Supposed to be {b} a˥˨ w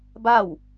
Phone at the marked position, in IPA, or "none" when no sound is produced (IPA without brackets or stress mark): b